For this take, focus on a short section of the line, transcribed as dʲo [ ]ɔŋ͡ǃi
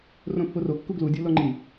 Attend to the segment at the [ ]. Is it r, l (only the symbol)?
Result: l